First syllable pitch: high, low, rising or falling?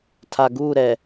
low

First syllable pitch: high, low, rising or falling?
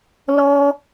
low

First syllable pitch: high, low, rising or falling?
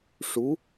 rising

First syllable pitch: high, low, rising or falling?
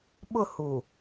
falling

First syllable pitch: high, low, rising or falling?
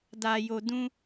low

